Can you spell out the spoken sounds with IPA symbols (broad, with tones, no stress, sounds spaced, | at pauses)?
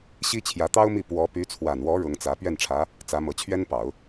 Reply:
ɕ i˥ t͡ɕʰ j ä˧˥ t̪ ɑ˥ ʊ̯ m i˥˩ p w ɔ˧˥ p y˧˥ t͡sʰ w a˨˩ n w ɔ˧˥ ɻ ʊ˧˥ ŋ t͡s ä˧˥ p ɥ ɛ˥˩ n ʈ͡ʂʰ ä˧˥ | t͡s ä˧˥ m ɤ˧˥ t͡ɕʰ ɥ ɛ˥ n p ɑ˨˩˦ ʊ̯